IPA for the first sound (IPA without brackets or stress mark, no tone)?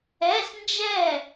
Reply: ɛ